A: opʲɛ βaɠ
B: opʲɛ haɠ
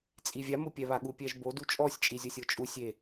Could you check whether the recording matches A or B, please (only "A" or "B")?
A